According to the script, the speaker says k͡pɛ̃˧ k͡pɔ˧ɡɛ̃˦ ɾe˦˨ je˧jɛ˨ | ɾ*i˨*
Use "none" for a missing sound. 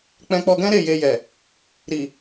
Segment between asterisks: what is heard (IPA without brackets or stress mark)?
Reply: i˨